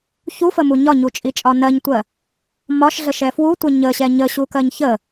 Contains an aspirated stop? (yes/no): no